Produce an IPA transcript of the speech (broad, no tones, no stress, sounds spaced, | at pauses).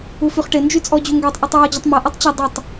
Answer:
u f y χ ʈ ɪ n d͡ʒ y t͡sʼ ɔ d͡ʑ u ŋ ɡ ø tˤ ʔ ø tˤ w ɔ d͡ʑ ɐ tˤ m ɐ ʔ y tˤ t͡ɕ ɐ dˤ ʊ tˤ